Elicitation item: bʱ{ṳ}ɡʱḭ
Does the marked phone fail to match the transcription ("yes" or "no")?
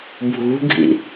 no